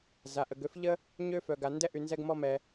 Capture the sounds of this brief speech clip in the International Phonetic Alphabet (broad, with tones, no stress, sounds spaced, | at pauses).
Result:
z a˧ ʔ ə˧ ɡ ø˥ f ʎ ə˥ | ɲ ø˥ f œ˧ ɡ a˧ n d ɛ˥ ʔ y˧ n z ɛ˥ ɡ m ɔ˥ m ɛ˧